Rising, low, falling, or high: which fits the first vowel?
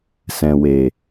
low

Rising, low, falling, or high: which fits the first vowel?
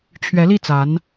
rising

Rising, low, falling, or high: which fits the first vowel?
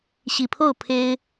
low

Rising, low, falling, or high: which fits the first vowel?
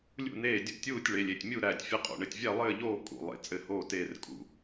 falling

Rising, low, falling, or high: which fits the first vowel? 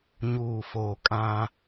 low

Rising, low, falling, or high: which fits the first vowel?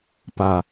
low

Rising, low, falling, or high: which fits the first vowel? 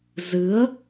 rising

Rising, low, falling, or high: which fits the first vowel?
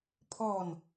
falling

